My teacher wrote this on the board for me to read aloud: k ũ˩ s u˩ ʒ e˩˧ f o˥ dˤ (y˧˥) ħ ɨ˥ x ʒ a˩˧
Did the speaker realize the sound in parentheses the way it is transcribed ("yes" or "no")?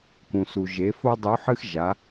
no